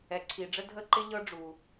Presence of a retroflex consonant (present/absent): present